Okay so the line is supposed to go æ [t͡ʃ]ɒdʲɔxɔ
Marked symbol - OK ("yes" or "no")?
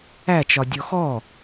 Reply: yes